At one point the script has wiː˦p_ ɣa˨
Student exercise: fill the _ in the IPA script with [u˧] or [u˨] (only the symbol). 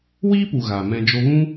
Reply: u˨